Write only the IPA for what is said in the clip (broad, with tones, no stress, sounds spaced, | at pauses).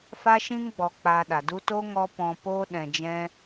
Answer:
f a˦ ʃ ĩ˦ ŋ ɡ͡b ɔ˨ k͡p a˧ ɗ a˨ d u˦ t o˦ ŋ ɔ˧ p ɔ̃˨ p oː˧ ɗ ɛ̃˨ d͡ʒ ɛ̃˧